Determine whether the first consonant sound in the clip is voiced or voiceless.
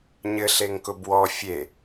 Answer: voiced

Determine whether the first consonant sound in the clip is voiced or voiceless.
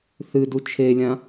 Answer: voiceless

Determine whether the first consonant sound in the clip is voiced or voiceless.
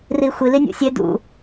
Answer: voiced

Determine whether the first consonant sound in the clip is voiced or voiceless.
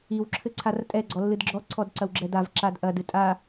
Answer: voiced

